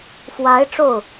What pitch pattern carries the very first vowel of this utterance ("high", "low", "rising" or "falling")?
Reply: rising